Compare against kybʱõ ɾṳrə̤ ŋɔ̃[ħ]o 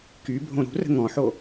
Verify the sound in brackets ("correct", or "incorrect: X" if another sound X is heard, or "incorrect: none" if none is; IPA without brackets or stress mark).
correct